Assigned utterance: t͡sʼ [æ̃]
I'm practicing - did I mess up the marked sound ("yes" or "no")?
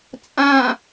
yes